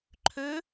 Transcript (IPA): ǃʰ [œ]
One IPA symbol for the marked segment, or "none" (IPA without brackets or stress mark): ø